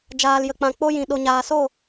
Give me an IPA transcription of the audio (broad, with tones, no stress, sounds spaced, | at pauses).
d͡ʒ aː˨ l j ə˨ k͡p ã˨ k͡p o˧ j ĩ˨ ɗ o˨ ɲ aː˨ s o˦˨